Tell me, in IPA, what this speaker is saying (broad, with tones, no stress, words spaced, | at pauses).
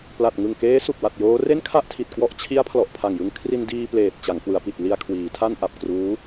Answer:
pla˨˩t̚ŋɯ˨˩ŋkeː˦˥ su˨˩k̚wa˨˩t̚ joː˦˥ re˥˩nkʰa˥˩ʔtʰi˨˩t̚ kwɔ˦˥ʔt͡ɕʰi˦˥a̯ pʰlɔ˨˩ʔpʰa˨˩ŋjɯ˧ŋ kʰri˧ndiː˧pleː˨˩t̚ t͡ɕa˩˦ŋkwɯ˩˦a̯pi˨˩t̚ li˧a̯kʰwiː˩˦tʰa˥˩n ʔa˨˩p̚kruː˦˥